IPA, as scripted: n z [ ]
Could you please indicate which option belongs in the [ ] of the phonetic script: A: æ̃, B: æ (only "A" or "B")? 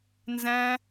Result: A